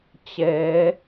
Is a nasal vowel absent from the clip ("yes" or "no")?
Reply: yes